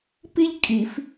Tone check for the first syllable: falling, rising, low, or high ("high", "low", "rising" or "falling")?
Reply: high